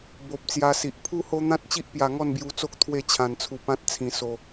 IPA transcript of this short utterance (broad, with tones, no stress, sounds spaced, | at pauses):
b o˨ p̚ t͡s j a˧ s i˨ ʔ pʰ u˦ h o˦ n̪ ã˦ t̚ t͡ɕ i˦ ʔ p j a˧ ŋ ɔ˥˧ n b j u˧ t͡s o˦ k̚ t̪ʰ w e˥˧ t͡ɕʰ ã˧ n t͡sʰ u˧ p ã˦ t̚ t͡sʰ ĩ˧ s o˧